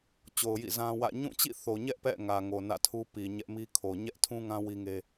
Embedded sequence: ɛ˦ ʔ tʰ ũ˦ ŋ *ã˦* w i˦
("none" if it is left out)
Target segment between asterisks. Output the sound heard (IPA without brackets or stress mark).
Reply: ã˦